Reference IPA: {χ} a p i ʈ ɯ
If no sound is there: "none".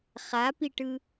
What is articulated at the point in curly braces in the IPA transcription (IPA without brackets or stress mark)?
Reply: χ